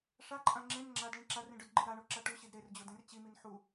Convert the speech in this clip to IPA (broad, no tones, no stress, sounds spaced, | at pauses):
ʂ a ǃʼ ã ŋ͡ǁ ẽ n ŋ͡ǁ a d ɭ ĩ ǁ a r ĩ ɖ œ d ɡ͡ǃ i ɾ a ɳ o ǁ a ʈ u ɕ i d ɾ e r d͡ʑ o d ẽ r t͡ɕ i m i n ħ u